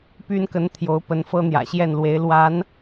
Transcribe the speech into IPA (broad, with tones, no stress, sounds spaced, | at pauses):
p y˥ n k ə˧˥ n t̪ʰ j o˧˥ ʊ̯ p ə˧˥ n f ɤ˥ n̪ j ä̰˨˩ ɕ j ɛ˥˩ n l w e˧˥ ɪ̯ l w a˧˥ n